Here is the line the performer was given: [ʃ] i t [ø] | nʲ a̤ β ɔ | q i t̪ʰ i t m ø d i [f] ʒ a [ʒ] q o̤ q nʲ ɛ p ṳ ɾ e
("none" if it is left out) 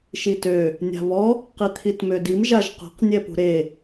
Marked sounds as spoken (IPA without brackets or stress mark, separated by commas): ʃ, ø, m, ʒ